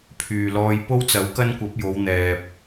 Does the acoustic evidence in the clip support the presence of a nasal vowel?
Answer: no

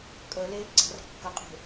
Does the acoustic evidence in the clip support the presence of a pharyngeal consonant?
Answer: no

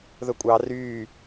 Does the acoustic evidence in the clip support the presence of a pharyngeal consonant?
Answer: no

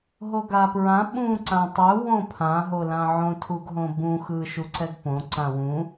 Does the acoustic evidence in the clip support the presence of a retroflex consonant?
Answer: no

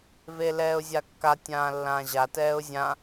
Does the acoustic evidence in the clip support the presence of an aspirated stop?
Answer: no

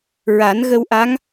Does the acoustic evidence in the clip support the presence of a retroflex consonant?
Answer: no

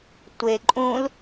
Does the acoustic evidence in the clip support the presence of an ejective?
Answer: yes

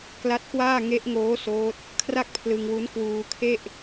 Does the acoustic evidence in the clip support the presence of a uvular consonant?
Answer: no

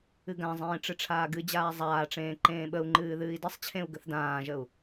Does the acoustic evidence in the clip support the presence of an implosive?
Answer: yes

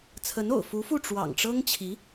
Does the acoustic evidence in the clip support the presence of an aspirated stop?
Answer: yes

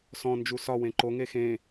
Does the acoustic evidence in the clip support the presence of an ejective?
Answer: no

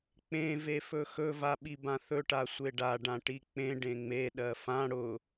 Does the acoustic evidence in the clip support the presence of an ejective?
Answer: no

